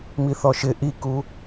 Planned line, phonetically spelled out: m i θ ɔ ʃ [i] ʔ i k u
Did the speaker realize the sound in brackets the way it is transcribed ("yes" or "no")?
no